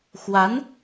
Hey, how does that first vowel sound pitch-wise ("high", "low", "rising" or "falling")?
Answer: rising